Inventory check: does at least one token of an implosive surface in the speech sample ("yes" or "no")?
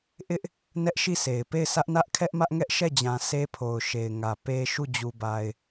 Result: no